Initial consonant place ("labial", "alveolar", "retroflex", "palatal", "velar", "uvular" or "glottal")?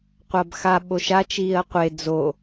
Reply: uvular